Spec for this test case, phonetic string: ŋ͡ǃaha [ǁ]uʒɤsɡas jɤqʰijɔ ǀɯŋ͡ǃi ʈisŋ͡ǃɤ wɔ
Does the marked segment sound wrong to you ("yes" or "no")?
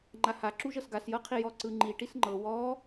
no